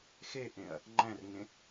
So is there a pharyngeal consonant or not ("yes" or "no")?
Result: no